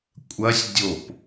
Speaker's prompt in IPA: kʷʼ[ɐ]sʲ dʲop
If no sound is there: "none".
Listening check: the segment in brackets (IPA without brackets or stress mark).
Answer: ɐ